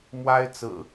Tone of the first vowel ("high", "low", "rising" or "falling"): high